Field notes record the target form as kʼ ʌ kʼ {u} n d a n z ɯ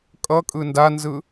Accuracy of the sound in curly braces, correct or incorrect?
incorrect